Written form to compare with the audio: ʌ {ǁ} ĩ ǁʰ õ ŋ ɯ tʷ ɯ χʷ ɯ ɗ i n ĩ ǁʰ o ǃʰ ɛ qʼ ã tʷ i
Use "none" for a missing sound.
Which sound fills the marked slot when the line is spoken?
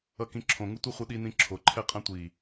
k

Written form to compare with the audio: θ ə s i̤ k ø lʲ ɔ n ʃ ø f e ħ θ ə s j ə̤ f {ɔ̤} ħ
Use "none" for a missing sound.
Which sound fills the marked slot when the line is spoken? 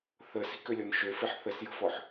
ɔ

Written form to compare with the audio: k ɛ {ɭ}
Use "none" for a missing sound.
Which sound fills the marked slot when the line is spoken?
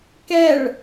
ɭ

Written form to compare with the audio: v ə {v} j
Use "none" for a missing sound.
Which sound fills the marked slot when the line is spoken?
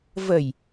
none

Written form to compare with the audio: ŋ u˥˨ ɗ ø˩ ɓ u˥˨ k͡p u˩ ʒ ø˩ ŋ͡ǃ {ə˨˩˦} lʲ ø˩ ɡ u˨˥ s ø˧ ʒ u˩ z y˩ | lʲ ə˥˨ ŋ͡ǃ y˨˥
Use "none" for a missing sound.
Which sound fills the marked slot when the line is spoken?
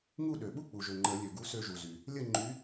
ə˨˩˦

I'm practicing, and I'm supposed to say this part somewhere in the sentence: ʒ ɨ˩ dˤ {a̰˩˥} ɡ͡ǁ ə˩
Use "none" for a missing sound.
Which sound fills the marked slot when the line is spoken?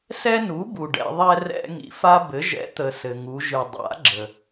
a̰˩˥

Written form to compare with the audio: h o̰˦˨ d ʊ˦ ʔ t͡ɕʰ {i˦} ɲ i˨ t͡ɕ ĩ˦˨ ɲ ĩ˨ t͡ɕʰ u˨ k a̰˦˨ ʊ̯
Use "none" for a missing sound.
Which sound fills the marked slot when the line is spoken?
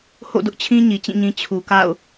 ĩ˦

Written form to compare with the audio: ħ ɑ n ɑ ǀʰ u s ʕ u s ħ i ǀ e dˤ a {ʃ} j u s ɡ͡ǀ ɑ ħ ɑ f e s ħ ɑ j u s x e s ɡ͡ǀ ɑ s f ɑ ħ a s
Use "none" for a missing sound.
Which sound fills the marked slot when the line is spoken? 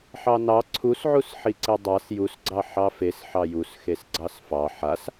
s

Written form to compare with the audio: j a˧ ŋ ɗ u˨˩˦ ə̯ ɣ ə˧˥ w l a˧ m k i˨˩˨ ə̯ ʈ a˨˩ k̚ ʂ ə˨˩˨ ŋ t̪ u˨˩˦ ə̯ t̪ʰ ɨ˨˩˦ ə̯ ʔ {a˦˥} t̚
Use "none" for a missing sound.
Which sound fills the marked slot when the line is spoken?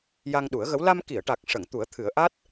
a˦˥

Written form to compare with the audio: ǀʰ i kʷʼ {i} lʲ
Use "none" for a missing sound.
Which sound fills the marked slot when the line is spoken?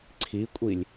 i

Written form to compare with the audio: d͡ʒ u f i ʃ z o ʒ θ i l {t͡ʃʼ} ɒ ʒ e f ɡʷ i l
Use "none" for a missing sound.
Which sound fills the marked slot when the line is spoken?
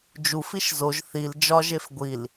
d͡ʒ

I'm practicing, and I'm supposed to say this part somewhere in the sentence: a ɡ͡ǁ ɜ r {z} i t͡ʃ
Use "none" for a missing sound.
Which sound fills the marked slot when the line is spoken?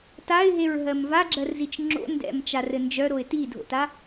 z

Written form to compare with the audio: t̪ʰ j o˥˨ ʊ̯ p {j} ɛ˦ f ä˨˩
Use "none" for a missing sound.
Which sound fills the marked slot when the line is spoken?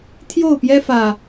j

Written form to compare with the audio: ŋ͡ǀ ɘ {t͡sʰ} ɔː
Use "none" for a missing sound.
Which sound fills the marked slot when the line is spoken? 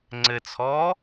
t͡sʰ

